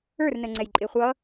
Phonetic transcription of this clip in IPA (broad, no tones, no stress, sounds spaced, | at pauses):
ə˞ r n ə ŋ͡ǀ ɛ j ǃʼ ɪ χʷ ʌ